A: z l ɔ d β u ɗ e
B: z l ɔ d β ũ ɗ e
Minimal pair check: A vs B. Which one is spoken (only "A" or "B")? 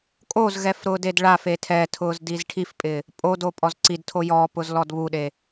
A